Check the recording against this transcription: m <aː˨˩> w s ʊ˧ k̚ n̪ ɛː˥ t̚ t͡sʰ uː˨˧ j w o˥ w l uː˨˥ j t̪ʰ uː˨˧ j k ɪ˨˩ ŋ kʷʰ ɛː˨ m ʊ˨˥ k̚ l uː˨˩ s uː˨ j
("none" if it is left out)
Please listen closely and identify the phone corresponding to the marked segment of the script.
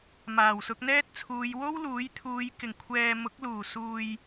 aː˨˩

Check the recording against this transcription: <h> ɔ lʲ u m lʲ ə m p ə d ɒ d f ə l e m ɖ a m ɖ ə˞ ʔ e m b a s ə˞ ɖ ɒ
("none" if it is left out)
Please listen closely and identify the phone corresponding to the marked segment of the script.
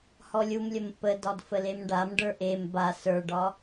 h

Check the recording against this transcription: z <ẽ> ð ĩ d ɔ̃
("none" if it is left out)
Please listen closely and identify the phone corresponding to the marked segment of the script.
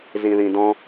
ĩ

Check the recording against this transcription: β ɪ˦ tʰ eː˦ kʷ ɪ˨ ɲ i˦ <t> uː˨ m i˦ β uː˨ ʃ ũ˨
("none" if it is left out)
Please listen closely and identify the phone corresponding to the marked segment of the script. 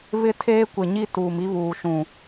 t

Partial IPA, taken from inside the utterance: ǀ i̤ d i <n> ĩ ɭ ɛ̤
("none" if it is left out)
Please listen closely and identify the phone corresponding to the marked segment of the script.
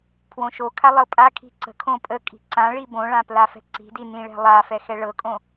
n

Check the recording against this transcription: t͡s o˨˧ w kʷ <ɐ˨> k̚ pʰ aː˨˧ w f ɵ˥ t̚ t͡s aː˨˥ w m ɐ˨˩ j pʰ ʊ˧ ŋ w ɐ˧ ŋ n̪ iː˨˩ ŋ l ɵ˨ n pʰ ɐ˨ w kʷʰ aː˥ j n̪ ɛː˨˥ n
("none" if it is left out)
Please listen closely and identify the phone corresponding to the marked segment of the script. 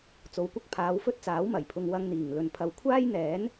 ɐ˥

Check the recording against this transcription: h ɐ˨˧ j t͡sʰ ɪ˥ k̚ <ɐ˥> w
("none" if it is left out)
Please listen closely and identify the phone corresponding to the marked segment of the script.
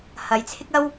ɐ˥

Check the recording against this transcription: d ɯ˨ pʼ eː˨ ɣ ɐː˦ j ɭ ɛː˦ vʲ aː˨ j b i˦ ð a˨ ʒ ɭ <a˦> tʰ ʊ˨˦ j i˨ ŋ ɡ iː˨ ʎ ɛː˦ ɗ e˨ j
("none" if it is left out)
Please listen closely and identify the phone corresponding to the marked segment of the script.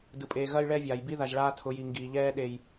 aː˦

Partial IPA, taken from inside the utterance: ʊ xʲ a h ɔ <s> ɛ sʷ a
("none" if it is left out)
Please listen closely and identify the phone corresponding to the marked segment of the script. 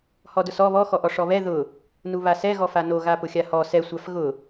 s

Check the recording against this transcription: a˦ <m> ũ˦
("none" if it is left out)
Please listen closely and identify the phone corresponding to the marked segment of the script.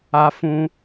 f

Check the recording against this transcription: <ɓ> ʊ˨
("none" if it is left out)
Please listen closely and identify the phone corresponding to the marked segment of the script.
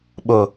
ɓ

